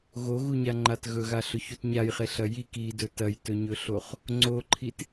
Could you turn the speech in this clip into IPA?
ɣoɣuɲaŋ͡ǃat ɣɵɣaɬɵçut ɲajχeɬɐ jik idɵ tɐjtɵɲɵɬoχ | ŋ͡ǀoǃʰit

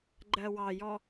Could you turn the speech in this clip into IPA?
ɡ͡ǃɜwɑjɔ

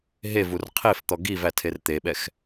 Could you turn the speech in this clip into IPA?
ɦe vurqʰeft̪ɔ ɡiv ætʰert̪eɓɛx

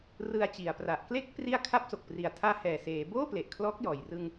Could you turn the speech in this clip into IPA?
rɯ˧a̯t͡ɕi˨˩a̯pra˨˩ʔ kle˦˥k̚pri˧a̯ kʰa˦˥p̚so˨˩k̚pri˨˩a̯ tʰaː˧hɛː˨˩seː˩˦ boː˥˩ ple˨˩ʔkʰlɔː˦˥k̚jɔː˨˩j rɯ˧ŋ

